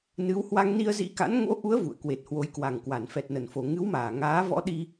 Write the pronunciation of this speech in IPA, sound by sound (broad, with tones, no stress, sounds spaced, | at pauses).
n ɨ˨˦ w h w a˧ ŋ n i˧ ə̯ z ḭ˧˥ k a̰˧˥ n ŋ o̰˧˥ ʔ u˨˦ ə̯ v ṵ˧˨ ə̯ k w e˨˩ t̚ h w o˨˦ j k w a˨˩ ŋ k w a˧˩ n f ɛ˨˩ t̚ n ə˧˩ n f o˨˩ ŋ ɨ˨˦ w m aː˧˩ ŋ aː˨˦ v ɔ̰˧˥ ɗ i˧